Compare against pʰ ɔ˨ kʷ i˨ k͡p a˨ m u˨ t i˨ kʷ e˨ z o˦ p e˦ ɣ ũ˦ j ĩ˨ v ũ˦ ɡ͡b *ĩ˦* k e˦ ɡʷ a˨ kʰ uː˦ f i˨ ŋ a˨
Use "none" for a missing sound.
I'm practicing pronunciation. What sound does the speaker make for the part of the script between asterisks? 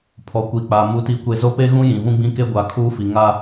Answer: ĩ˦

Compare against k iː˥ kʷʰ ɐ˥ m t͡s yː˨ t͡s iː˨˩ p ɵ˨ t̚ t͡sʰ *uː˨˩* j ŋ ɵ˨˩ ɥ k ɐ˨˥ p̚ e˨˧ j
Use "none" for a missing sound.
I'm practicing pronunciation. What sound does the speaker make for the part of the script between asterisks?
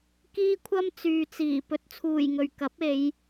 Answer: uː˨˩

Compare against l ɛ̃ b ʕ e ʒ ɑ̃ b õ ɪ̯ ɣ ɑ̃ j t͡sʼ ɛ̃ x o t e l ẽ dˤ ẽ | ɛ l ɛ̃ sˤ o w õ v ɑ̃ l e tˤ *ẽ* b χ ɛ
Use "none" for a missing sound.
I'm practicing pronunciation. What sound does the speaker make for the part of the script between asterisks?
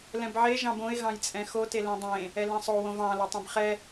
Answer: ẽ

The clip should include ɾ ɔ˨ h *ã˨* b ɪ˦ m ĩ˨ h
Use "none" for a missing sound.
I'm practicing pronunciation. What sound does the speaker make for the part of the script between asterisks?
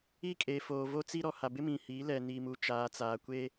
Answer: a˨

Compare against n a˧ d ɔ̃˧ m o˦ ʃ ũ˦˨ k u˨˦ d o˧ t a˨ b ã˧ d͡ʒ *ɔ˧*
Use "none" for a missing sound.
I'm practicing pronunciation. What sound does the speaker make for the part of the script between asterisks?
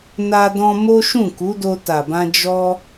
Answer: ɔ˧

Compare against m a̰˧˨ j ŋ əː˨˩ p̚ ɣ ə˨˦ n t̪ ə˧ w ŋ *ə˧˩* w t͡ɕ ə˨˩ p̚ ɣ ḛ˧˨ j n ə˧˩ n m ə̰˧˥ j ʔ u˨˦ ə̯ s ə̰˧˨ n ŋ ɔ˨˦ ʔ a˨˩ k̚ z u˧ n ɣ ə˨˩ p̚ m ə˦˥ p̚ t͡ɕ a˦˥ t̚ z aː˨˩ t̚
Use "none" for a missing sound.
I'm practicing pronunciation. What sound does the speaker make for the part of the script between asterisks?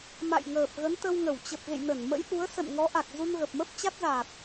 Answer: ə˧˩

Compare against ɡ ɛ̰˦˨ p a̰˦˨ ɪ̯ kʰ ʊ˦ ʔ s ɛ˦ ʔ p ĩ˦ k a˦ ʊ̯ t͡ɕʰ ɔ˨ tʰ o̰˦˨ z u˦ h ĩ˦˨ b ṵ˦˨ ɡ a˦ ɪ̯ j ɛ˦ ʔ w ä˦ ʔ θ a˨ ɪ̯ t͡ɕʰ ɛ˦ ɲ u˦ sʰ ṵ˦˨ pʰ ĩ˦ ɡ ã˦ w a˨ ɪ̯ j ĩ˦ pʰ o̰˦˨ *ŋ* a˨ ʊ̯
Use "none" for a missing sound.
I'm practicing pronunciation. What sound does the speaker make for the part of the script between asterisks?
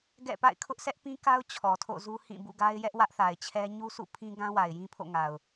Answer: ŋ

